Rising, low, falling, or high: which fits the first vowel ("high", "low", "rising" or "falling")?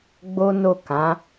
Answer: high